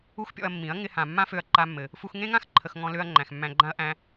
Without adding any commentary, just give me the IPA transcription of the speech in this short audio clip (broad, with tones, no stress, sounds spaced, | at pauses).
u˦ x pʲ ɔ̰˧ ɐ̯ mː ĩ˨˦ ɐ̯ ŋ ɪ˧ h ã˨ mː ã˦ f ø˧ ɐ̯ ǃ a˧ mː ɘ˨ | f u˧ x ŋ ẽ˦ ŋ ã˦ x ǃʰ ə˨ x ŋ ɔ̃˧ l ø˧ ɐ̯ ŋ͡ǃ æ̃˨ x mː æ̃˧ ɡ͡ǃ ã˦ ɐ̯ ʔ æ̃˧